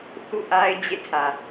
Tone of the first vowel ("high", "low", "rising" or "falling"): falling